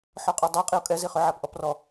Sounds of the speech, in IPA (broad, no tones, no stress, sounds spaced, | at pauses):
ħ ɔ qʼ ɔ dˤ a qʼ i o̯ kʼ ɛ z i χ ø ʕ a p ʔ ɔ p r ɔ